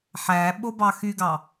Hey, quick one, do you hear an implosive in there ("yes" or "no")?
yes